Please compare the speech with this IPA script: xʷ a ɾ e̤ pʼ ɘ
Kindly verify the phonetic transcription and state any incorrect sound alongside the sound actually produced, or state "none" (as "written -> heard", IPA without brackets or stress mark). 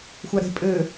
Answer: none